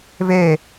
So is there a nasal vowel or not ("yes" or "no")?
no